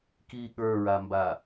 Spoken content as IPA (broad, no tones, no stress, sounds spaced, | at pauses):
k i ɠ ə˞ ɹ a m b a